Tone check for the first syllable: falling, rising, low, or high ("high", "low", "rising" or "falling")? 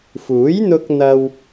rising